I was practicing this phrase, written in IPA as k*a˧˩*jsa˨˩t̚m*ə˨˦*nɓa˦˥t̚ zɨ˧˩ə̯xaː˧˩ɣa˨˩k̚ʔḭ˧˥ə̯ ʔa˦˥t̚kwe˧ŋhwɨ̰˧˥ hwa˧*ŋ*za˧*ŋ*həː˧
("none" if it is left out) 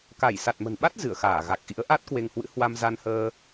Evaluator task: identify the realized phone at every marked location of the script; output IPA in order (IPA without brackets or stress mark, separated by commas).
a˧˩, ə̤˨˩, m, n